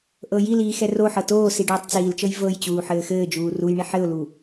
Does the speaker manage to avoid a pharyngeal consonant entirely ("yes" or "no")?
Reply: no